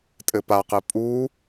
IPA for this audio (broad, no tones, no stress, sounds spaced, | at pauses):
tʼ ɘ p a q ɘ pʼ u